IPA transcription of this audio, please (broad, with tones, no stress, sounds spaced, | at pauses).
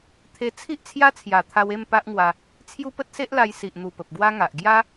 t̪ʰ e˧ t͡sʰ i˦ ʔ t͡sʰ j a˦ t͡sʰ j a˨˩ t̪ʰ a˧ w e˥˧ m p a˦ ʔ ŋ w a˧ | t͡sʰ j u˦ p ə˦ t̚ s e˦ ʔ l a˧ j s i˨ ʔ n̪ u˨˩ p ə˨ p̚ ɡ w a˦ ŋ a˨ ʔ ɡ j a˦